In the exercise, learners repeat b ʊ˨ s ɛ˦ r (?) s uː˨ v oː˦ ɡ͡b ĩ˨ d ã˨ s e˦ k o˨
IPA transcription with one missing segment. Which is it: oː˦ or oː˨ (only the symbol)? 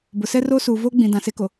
oː˦